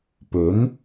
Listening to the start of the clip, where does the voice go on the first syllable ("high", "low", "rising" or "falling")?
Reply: rising